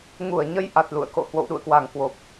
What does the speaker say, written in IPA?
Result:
ŋ u˧˩ ə̯ ɲ ə˧ j ʔ a˨˩ t̚ l ṵ˧˨ ə̯ k o̰˧˨ h w o̰˧˨ w ɗ ṵ˧˨ ə̯ k w a˨˩ ŋ k w o˨˩ p̚

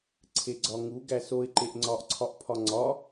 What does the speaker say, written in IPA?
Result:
ǀʰ e ɡ͡ǀ ɒ ŋ u ɡ æ s o ɪ̯ ǃ e ʔ ŋ͡ǀ ɒ ʔ ǀʰ ɒ ʔ pʰ ɒ ŋ͡ǀ ɒ

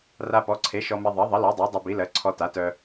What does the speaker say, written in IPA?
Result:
r a˧ p ɔ˩˥ ǀʰ e˩˥ ʃ ɔ˧ m e˧ ðˤ ɜ˩˥ ðˤ ə˩˥ l ɔ˩˥ dˤ ɜ˩˥ dˤ ø˧ b i˩˥ l ɜ˩˥ ǀʰ ɔ˧ t a˩˥ t œ˧

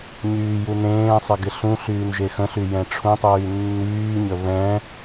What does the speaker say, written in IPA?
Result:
ɲ yː j u n ẽː sˤ ɪ ɡ ɪ ɬ ũ ɬ yː n ʒ e x ə̃ ɬ y j ɛ̃ ʈ͡ʂʰ ũ tˤ yː nː yː ɲ ə β ɛ̃

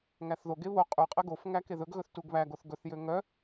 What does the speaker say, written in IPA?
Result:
ŋ æ θ ð o ɡ e β o qʼ y qʼ e ɡ o f ŋ æ k e ð ɵ ɡ ɣ ɵ θ t u ɡ β æ ɡ o θ ɡ ɵ θ j ø ŋ œ

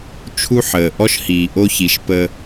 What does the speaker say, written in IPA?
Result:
t͡ʃʰ u˥ ħ əː˩ ʔ ɔ˥ ʃ h iː˩ ʔ o˥ ç i˩˥ ʃ p əː˧

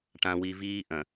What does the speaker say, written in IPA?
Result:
ʈ ã˨ w i˨ v iː˦ ʔ ɐ̃˨

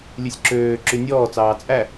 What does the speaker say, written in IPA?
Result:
lʲ ʉ sʲ ǁ øː ǁ y nʲ ɔː t͡s ɑː t͡sʼ æ

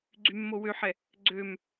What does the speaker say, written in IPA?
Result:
ɡ͡ǀ y mː o w ø ħ ɛ | ɡ͡ǀ ø m

